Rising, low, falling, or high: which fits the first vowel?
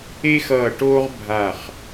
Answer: high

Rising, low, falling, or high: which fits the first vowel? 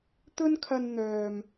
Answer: high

